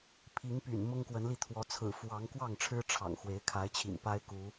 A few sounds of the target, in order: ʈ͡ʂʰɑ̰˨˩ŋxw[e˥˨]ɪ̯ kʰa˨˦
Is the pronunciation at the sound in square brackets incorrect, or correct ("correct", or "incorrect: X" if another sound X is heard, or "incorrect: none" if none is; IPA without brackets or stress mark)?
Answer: incorrect: e˨˦